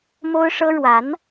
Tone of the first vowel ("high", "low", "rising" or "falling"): high